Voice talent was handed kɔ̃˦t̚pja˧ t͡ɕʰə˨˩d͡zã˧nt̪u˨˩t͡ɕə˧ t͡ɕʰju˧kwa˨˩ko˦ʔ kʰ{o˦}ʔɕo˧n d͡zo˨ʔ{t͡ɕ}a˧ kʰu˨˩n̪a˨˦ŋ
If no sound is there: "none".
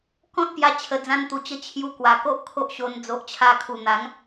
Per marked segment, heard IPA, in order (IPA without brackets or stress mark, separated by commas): o˦, t͡ɕʰ